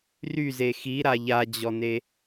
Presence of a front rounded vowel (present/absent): present